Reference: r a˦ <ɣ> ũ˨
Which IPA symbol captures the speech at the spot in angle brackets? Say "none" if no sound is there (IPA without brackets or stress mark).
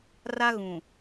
ɣ